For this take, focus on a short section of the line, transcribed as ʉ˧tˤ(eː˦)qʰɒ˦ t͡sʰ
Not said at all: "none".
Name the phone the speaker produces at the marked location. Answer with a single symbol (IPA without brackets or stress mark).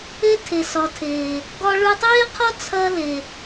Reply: eː˦